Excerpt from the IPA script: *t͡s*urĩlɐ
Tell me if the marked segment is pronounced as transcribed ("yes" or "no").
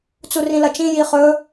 yes